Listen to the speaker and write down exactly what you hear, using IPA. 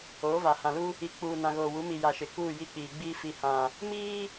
oː˨˦ v a˨ h ã˨ l u˦ | i˨ k͡p uː˨ n ã˨ ɣ oː˨ w u˨˦ m i˨ j a˨ ʃ ɪ˨ k uː˦˨ j i˦ k͡p iː˨ ɡ͡b iː˦ f i˨ h ã˨ | m iː˦

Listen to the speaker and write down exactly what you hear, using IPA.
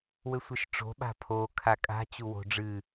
w ɘ sʷ ɛ ʃ ʈ͡ʂ o̤ ɓ a̤ pʰ o kʰ a kʼ a̤ t͡ɕ u w o̤ ɖ͡ʐ ɨ

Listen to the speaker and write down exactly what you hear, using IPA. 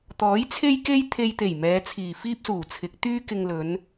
t̪ ɔː˨˥ j t͡sʰ e˥ j k e˥ j t̪ʰ e˧ j t̪ e˨˩ j m ɛː˨˧ t͡sʰ iː˨˩ f iː˥ p̚ s uː˨˩ t͡sʰ ɪ˨˥ k̚ t̪ yː˥ k ɪ˧ ŋ l ɵ˨˧ n

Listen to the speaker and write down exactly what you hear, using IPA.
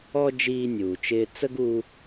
ɔ˧ d͡ʒ iː˧ nʲ uː˩ t͡ʃ ɪː˧ t͡s ə˥ ɡ u˧

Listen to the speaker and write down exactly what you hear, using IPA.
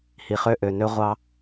h i˨ χ ø˦ ʔ ø˨ n ø˦ ʁʷ ɑ˦

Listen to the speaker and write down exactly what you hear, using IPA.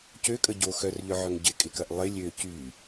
c ø kʼ ə ɟ o x œ r ʎ œ ʕ œ ŋ ɟ ɪ kʼ ɪ k ɐ ʔ lˠ ɪ lʲ ø c y

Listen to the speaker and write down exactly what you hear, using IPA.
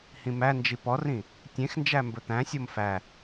h ĩ m æ n d͡ʒ i p ɔ r ĩ | tʲ ẽ x n d͡ʒ æ m b ɵ t̪ æ̃ sʲ o m f æ

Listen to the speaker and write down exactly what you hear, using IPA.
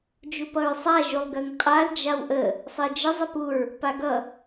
d͡ʒ u p ʌ ɹ sˤ a ʒ u lˠ ɡ ɜ ŋ qʼ a l d͡ʒ a w ʔ ə | sˤ ɜ d͡ʒ ə zˤ ə p u ɹ | p a ɡ ʌ

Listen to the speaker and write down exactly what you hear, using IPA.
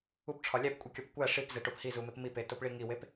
u p ʈ͡ʂʰ ɒ lʲ æ p kʷʼ i kʲ ɒ p kʷ æ ʂ i p z e ʈ o p h i z u m e p m i p e t o p ɭ i ŋ i w e p

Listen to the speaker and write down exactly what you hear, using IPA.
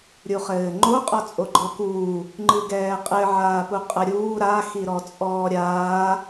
ɾʲ u χ ɘː ŋ͡ǃ o qʼ ɔ t͡sʼ o ɡ͡ǃ ɔ k uː | ŋ͡ǃ ɨ ɡ ɛː qʼ ɘ ʕ aː p u qʼ ɐ ɾʲ uː ɾ a x i ɾ ɔ t͡sʼ ɔː ɾʲ aː

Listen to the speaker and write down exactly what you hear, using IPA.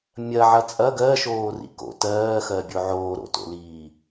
mʲ ɐ ʕ ɐ t͡sʼ ɐ ɡ ɜ ʃ oː r ḭ k o̰ t ɜː x ɜ bʲ o ʕ oː ɾ o̰ t o̰ l iː

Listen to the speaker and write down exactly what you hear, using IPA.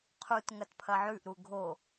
qʰ u t ŋ ɐ t pʰ ɐ ʕ ʉ ʔ ɾ u ɡʱ o

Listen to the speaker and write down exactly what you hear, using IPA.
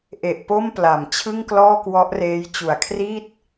ʔ e˨˩ ʔ p o˥˩ m p l a˨˩ m t͡ɕʰ ɯ˥˩ ŋ k l ɔː˥˩ k w ɔ˦˥ ʔ r eː˦˥ j t͡ɕ u˨˩ a̯ kʰ r i˥˩ t̚

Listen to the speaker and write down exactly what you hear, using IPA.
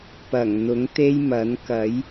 p ɐ˨˩ ŋ n̪ ʊ˨˥ ŋ t̪ e˥ j m ɐ˨˥ n k ɐ˨˥ j

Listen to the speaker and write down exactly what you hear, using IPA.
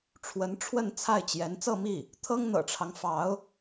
ʈ͡ʂʰ w ə˧˥ n ʈ͡ʂʰ w ə˥˧ n t͡sʰ a˥˩ ɪ̯ t͡ɕ j ɛ˧˥ n t͡s ɤ˥˧ m i˥˩ | t̪ʰ ɤ˥ ŋ n̪ ɤ̰˨˩ ʈ͡ʂʰ ɑ˦ ŋ f ɑ˧˥ ʊ̯

